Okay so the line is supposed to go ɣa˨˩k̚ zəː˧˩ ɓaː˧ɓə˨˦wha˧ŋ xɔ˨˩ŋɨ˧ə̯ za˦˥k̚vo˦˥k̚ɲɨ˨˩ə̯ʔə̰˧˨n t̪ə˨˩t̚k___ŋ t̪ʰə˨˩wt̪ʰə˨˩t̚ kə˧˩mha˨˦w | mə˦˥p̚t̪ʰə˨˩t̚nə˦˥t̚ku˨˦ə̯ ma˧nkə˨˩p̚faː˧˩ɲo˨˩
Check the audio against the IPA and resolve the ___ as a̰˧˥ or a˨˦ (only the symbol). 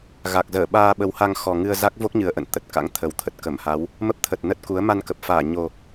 a̰˧˥